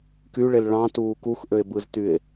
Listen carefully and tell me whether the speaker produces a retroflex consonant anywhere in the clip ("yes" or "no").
yes